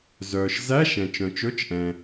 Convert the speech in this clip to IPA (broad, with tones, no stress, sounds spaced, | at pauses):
z œː˩ ʃ z æ˧˥˧ ʃ ɛ̃˩ t͡ʃ œ̃˩ t͡ʃ ɵ˧˥˧ t͡ʃ ʔ ɛ̃˩